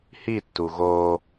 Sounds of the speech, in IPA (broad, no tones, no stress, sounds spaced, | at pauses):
h i tː u ɣ o